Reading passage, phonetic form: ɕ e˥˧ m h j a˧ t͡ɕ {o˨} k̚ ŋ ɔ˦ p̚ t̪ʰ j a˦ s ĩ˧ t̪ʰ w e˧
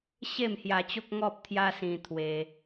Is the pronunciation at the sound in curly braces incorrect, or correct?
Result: incorrect